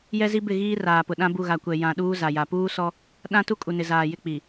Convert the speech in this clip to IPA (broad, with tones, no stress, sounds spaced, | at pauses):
j ɛ˦ z i˦ b ɪ˦˨ ɣ iː˦ r aː˨ p ʊ˨ ɗ ã˦ b u˦˨ ɣ a˨ kʷ ɛ˨ j ã˨ ɗ uː˦ z a˨ j a˨ p uː˦ s ɔ˦ | ɗ ã˦ t u˦ kʼ u˨ n ɪ˨ z aː˨ j ɪ˦˨ k͡p i˨